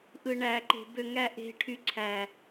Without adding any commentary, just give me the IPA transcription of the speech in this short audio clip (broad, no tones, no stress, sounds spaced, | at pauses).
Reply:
ʔ ɯ ɳ æ ǃ e̤ b ø ŋ æ ʔ e̤ ʈʰ y ǀʰ æ